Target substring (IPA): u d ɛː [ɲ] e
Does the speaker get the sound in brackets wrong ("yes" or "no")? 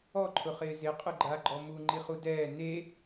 yes